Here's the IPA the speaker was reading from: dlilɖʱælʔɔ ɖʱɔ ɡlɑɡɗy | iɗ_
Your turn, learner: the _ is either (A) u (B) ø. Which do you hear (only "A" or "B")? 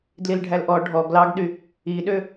B